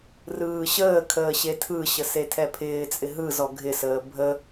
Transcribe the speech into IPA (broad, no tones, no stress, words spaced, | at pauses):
rɯːɕəːkʰəː ɕetʰɯɕə setʰɛpʰɪːt͡sʼɪ ɦɯzɔ ɡʱɪsəː bʱə